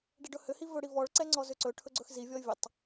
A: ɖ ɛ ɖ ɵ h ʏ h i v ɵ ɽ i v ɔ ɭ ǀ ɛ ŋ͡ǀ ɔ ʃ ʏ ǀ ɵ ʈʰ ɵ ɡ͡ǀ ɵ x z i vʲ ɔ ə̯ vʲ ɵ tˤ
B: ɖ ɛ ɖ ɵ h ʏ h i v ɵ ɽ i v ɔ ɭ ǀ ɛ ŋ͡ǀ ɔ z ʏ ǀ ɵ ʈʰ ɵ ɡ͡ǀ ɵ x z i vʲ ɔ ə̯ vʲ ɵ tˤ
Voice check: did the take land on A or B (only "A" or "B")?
B